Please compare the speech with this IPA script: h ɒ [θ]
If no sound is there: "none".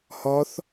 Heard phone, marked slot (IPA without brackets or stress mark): θ